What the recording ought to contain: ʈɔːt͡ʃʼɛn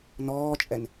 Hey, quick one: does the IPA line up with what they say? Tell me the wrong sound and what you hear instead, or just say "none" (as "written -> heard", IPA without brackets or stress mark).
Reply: ʈ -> n